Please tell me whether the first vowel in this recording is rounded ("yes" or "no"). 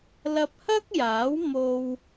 no